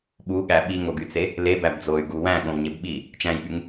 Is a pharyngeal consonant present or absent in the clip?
absent